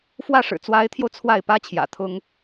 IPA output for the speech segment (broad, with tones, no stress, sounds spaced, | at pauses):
f w ä˥˩ ʂ ɻ̩˨˩ t͡s w a˧˥ ɪ̯ t̪ʰ j o˧ ʊ̯ t͡sʰ w a˥˩ ɪ̯ p ä˥ t͡ɕʰ j ä̰˨˩ t̪ʰ ʊ˥ ŋ